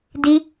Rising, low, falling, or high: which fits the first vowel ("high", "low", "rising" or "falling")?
high